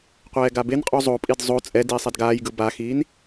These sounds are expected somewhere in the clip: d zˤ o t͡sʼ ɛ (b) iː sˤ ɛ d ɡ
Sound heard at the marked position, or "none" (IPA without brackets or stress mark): d